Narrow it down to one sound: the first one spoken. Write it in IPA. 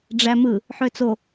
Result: ɖ͡ʐ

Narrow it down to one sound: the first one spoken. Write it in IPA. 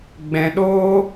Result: ɡ͡b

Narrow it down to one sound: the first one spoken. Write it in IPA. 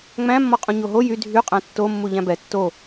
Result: ŋ͡m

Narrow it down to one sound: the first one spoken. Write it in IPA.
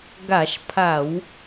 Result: ɡ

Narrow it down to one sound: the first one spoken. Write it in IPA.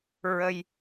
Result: ɹ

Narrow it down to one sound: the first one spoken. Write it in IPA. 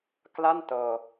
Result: k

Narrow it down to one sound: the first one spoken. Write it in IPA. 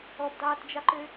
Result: ɔ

